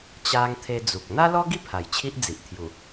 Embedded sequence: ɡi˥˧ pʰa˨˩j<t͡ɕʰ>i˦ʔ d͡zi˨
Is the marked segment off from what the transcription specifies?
no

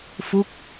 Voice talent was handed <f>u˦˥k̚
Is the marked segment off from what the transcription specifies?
no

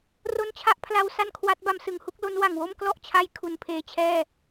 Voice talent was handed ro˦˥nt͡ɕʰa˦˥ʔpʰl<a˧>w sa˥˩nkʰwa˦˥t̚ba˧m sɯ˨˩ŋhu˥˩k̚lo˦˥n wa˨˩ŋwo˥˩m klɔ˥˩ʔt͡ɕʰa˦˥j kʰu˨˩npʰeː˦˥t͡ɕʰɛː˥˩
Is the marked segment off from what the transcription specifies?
no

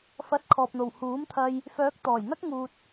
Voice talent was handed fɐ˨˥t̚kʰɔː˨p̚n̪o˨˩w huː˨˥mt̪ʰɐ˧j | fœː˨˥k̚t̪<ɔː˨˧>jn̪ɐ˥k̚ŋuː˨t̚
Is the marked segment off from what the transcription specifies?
yes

